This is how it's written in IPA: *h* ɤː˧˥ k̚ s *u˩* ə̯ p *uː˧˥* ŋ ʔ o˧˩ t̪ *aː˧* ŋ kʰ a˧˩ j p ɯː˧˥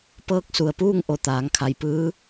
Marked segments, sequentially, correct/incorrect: incorrect, correct, incorrect, incorrect

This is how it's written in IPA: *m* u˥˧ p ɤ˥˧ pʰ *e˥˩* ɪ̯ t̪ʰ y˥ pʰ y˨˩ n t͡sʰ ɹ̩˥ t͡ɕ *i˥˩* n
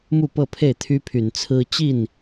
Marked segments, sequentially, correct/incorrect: correct, correct, correct

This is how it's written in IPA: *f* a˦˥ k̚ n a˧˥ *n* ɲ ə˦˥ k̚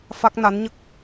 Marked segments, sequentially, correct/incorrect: correct, correct

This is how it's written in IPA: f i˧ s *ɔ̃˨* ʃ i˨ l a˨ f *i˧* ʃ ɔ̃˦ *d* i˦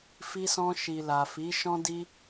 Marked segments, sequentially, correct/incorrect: incorrect, incorrect, correct

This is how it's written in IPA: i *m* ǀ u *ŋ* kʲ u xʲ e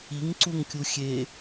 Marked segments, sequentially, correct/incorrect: incorrect, correct

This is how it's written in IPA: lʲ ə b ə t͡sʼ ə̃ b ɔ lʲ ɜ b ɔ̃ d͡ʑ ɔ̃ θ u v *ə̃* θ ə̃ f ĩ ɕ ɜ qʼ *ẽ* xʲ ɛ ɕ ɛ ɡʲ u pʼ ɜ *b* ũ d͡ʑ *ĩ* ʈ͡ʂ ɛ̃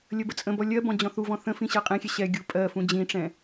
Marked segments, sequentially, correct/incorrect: incorrect, correct, incorrect, correct

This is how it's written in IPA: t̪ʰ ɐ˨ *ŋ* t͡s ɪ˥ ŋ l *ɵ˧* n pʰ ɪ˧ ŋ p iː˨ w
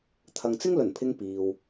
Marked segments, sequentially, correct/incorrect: correct, incorrect

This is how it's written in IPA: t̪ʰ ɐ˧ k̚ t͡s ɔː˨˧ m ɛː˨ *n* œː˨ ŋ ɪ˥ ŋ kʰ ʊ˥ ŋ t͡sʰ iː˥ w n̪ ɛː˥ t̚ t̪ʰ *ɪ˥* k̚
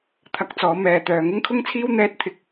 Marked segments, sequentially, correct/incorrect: incorrect, correct

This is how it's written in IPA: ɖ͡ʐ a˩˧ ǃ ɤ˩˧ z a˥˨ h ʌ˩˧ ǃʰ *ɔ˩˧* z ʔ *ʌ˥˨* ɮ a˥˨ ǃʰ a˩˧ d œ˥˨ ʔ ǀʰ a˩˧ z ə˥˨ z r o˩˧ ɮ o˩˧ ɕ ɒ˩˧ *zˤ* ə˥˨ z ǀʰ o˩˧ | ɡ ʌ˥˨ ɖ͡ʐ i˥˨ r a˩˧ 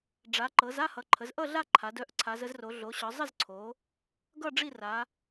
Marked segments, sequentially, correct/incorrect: incorrect, correct, correct

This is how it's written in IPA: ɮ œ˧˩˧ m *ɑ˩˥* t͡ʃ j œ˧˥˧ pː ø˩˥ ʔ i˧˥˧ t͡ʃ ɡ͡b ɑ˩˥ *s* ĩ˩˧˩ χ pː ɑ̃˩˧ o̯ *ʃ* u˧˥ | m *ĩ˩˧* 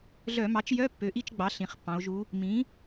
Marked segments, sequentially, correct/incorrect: correct, incorrect, incorrect, incorrect

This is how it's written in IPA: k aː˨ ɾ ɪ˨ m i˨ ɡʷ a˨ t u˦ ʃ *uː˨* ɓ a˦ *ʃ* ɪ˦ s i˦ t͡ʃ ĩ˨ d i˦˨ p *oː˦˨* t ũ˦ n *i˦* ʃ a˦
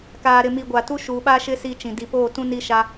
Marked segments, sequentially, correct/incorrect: correct, correct, correct, correct

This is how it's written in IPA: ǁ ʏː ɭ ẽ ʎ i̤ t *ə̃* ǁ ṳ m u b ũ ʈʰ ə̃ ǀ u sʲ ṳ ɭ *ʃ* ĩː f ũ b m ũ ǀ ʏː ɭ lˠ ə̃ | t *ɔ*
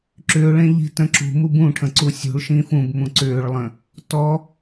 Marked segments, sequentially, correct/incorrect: correct, correct, correct

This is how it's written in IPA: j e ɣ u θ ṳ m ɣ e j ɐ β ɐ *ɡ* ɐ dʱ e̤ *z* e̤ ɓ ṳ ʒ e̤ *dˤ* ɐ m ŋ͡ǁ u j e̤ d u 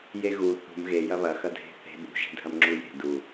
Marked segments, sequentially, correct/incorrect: incorrect, incorrect, incorrect

